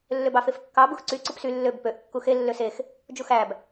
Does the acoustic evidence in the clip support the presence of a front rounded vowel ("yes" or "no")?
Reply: yes